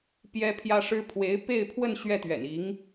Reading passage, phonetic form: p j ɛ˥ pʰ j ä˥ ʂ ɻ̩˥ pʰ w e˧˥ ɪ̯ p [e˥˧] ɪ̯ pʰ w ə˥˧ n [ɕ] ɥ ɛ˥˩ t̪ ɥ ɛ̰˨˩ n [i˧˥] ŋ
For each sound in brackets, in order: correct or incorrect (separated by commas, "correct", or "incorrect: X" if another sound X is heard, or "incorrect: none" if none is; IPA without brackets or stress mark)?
correct, correct, correct